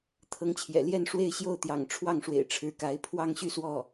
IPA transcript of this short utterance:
t̪ʰ ɤ˧˥ ŋ t͡ɕʰ j ɛ̰˨˩ l j ɛ˥˧ n ʂ w e˥˧ ɪ̯ ɕ j o˥˩ ʊ̯ t̪ j ɑ̰˨˩ ŋ ʈ͡ʂʰ w ɑ˥˩ ŋ ʂ w ḛ˨˩ ɪ̯ ʈ͡ʂʰ ɻ̩˧˥ k a˧˥ ɪ̯ pʰ w ɑ˥˧ ŋ ɕ y˥˧ s w ɔ˥˩

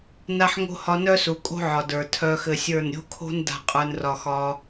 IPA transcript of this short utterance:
n a˧ ħ ŋ o̤˧ h ɒ˧ n œ˦ s u˨ kʼ o̤˦ ʕ ɒ˨ d ə˞˨ tʰ œ˧ x ɘ˧ sʲ ə˞˦˨ n ɾʲ o̤˦ kʰ o̤˦ n d a̤˦ qʼ ə˞˦ n r ɒ˦ x ɒ˧

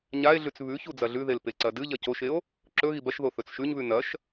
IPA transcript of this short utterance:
ɲ a e̯ ɮ ʉ t͡s β ʉ ç u d͡z ɐ ɮ ʉ ð e l p e ǀ ɐ d ɨ ʎ ɐ c o ʃ e o̯ | ǁ ɵ ɣ i b ɐ ʃ ð o θ ɵ t͡s ʃ ʉ ɲ β ʉ n ɐ ʃ

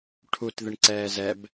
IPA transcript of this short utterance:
ʈʰ u t ð ɪ ɳ ǀ ɛː z ɛ b

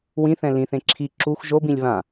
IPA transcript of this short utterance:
w ĩ θ ɛ̃ l ĩ θ ẽ ǁʰ i ǁ u x ʒ o b ĩ lʲ β ã

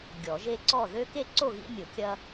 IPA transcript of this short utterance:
ɡʲ ɔ˨˩˦ ʒ e˦ ǀ ɔ˥˨ ð ø˦ k e˥˨ ǀ o˥˨ ɣ ḭ˦ mʲ ʊ˨˩˦ kʲ ɐ˦

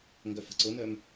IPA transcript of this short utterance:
ŋ ɡ œ f ə̤ ǀ ʊ n œ m

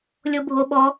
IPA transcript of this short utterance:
lʲ o bʱ o ɓ ɔ

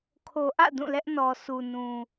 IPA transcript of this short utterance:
kʰ o˨ ʔ ä̰˦˨ d ũ˦˨ l ɛ˦ ʔ n ɔ˨ sʰ u˨ n ũ˨

